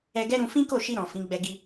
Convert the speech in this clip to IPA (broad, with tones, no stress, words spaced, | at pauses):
ɛ˧ɡɛ˦ ɾũ˧ fĩ˦ko˦˨ʃi˧ɾɔ̃˨ fĩ˨˦ɡ͡bɛ˧ ɡi˧